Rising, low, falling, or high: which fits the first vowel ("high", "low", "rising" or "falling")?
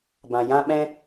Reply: low